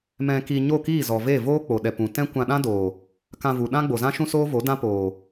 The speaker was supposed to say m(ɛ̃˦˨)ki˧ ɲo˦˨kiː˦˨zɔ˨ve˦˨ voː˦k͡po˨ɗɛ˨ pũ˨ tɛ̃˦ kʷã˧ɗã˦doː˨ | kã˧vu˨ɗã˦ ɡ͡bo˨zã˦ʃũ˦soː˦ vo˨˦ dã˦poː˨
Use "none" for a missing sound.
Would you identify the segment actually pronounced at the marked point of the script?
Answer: ɛ̃˧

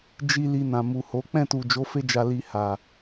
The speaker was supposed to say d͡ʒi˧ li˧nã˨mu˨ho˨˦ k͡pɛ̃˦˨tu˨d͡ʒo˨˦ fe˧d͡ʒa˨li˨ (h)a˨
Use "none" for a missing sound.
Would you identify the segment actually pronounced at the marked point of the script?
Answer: h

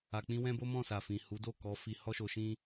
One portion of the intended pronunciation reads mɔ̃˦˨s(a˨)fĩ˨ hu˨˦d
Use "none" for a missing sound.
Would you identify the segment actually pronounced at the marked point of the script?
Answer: a˨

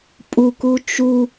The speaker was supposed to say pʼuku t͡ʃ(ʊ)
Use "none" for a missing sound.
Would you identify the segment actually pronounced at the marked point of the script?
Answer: u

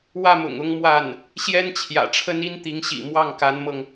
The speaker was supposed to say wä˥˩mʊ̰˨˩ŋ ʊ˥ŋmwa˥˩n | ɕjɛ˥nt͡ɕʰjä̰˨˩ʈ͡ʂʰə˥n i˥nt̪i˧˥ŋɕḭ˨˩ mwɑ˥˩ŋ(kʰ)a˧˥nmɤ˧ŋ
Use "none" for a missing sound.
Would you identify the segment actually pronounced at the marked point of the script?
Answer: k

